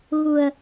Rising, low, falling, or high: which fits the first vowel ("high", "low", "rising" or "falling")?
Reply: low